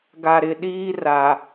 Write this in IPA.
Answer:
ɡ a˨ ɾ ɪ˨ ɗ iː˦ r a˨

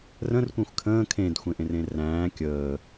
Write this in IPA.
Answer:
r ə̃ r kʷ ẽ xʷ kʰ ə̃ː kʰ ẽ d xʷ ẽ ʔ ẽ r ẽ r æ̃ː kʲ əː

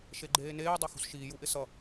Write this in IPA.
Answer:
ʃ e ɡ͡ǃ eː n eː dˤ ɑ x ṳ s ʃ iː j u ʔ ɪ s ʌ

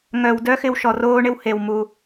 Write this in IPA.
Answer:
ŋ œ˧ w d œ˥ x ɪ˥ w ʃ ɔ˧ r oː˥ ɳ ɪ˥ w h e˧ w m u˧

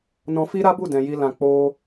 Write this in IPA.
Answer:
n ɔ̃˧ f i˦ ɾ a˦ b u˦˨ d ɛ̃˧ j i˧ l ã˧ k͡p o˧

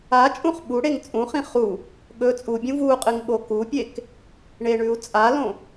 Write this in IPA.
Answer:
a t͡ʃʼ ũ χ ɓ u ɽ e ŋ t͡sʼ ũ χ ĩ χ u | ɠ ɵ t͡sʼ u bʲ ũ v u qʼ ɨ ŋ ɓ o k u pʲ e k | ɳ e ɳ ʉ u̯ t͡sʼ a l õ

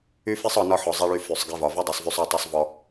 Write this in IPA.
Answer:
y˦ f i˦ sˤ ɒ˧ n ɒ˦ ħ ɔ˨ zˤ i˧ ɭ y˧ f y˨ sˤ ɡ i˧ v ɒ˨ v o˦ dˤ y˨ sˤ v y˧ sˤ ɔ˦˨ tˤ y˧ sˤ v ɔ˧

